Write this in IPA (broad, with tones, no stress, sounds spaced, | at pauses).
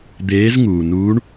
d̪ eː˨˦ z ŋ uː˩ n uː˨˦ ɳ